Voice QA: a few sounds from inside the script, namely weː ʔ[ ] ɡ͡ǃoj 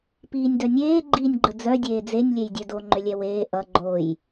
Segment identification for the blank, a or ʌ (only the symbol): ʌ